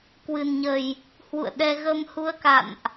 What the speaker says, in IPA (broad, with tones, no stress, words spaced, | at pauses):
kwɨ˨˩nɲə˨˩j | hwṵ˧˨ə̯ɗɛ˧ ɣə˧mhu˧ə̯ka̰˧˨nʔ